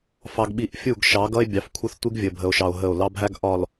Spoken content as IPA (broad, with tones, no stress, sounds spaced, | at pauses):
f ɑ˨ ɡ ɓ i˨ ʔ fʲ u˦˨ ɡ ʃ ɑ˨˦ ɡ ʌ˦ e̯ bʲ ɑ˨ f kʷʰ ə˦ θ tʷ i˦ ɡ vʲ ə˨ bʱ ə˨ o̯ ʃ ɑ˨ o̯ ɦ ə˦˨ o̯ l ɑ˦ bʱ æ˦ ɡ ʔ ɒ˨ l